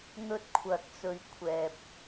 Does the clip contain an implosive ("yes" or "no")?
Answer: no